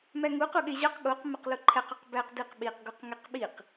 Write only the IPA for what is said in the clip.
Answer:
m æ ŋ u q u ɠ e ʑ ɒ q ɠ o q m æ q l o ǃʰ æ q ɒ q b æ q d i q ɓ i q ɡ u q ŋ e q ɓ i q

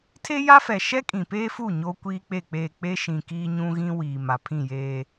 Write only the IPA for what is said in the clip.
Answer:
tʰ e˦ j a˦ f ɛ˨ ʃ ɛ˦ kʼ ĩ˨ p eː˦ f u˦˨ ɲ oː˦ kʷ iː˦ k͡p e˦˨ k͡p eː˦˨ k͡p e˦ ʃ ĩ˨ k iː˦ ɲ ũ˦ ɣ ĩ˦ w iː˨ m a˨ pʰ ĩ˦˨ j eː˦

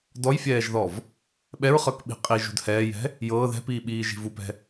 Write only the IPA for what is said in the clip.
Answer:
d ɔ j fʲ ɛː ʒ ð ɔ v | ɓ ɛ ɹ χ ɤ k ɓ i̤ qʼ i ʒ ṳ d h ɛː j ɛ̤ | j ɤː ð ɛ̤ p iː ɓ iː ʒ i̤ v u p ɛ̤

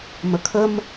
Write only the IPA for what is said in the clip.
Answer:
m ə kʰ ə m

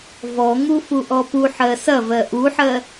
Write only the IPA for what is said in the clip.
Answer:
v ɔ ŋ u f u ʔ ɔ p u ħ ɜ s ɐ v ɜ ʔ u ħ ɜ

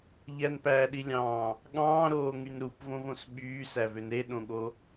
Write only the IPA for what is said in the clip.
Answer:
ʎ æ n p æː ɗ i lʲ ɑ̃ː | ɠ ɑ̃ː ɾ oː ŋ y n ɾ u p v õ v õ s ɓ yː s æ v ø n ɾ e ɗ õ ɠ o

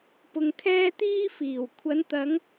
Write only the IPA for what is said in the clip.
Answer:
p ʊ˧ ŋ kʰ ɛː˥ t̪ iː˥ f iː˨˩ w kʷʰ ɐ˨˧ n t̪ ɐ˨˧ ŋ

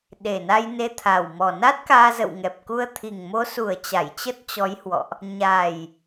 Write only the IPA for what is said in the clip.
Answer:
ɗ e˨˩ n a˧ j n e˧ t̪ʰ a˨˩ w m ɔ˨˩ n a˦˥ t̚ k aː˧ z ə̰˧˨ w ŋ ɛ˨˩ p̚ k u˧ ə̯ t̪ʰ i˨˩ ŋ m o˨˦ s u˨˩ ə̯ t͡ɕ a˧˩ j t͡ɕ ə˦˥ t̚ t͡ɕ ɔ˨˦ j h w ɔ̰˧˨ ʔ | ɲ a˨˩ j

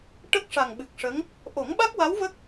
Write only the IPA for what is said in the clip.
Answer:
ʈ ə˦˥ k̚ ʂ a˨˩ ŋ ɓ ɨ˨˩ k̚ ʂ ə˧˥ ŋ | ʔ o˨˩˦ ŋ ɓ a˦˥ k̚ w a˧˥ w v ə˦˥ k̚

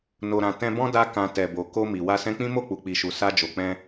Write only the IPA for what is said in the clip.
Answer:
n o˨ ɾ ã˨ t ɛ̃˧ b ɔ̃˦ d a˧ k ã˨ t ɛ˨ b o˨ k o˧ m i˨ w a˧ s ɛ̃˧ k͡p ĩ˦ m o˦˨ k͡p u˨ k͡p i˨ ʃ u˨ s a˧ d͡ʒ o˨ k͡p ɛ̃˧

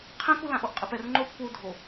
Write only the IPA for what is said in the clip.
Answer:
qʰ ɛ̃ k u l ã ʔ o ʔ qʼ ɛ p ɛ r ŋ͡ǃ o kʷʰ a u̯ dʱ o

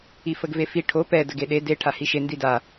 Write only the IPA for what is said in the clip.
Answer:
i f ə ɡ v e f i ʈʰ o p ɛ d ə ɡ e ɗ e d e ʈʰ a h i ʃ e n d i d a

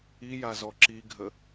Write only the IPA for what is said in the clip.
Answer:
i j a z ɔ ǁ i ɡʱ ə

